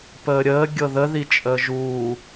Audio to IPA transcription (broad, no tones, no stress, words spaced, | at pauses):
pəːɾʲəː ɡʲɤðəðit͡ʃʼəː ʒuː